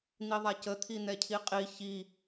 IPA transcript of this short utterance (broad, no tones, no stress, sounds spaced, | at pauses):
n̪ i ðˤ a c ə t̪ʰ i n̪ ɛ cʰ i qʼ i ç i